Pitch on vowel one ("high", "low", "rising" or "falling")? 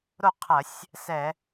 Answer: falling